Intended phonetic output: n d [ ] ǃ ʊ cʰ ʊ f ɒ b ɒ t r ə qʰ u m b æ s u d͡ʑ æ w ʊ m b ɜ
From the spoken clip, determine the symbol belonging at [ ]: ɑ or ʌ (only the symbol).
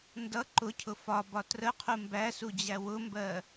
ʌ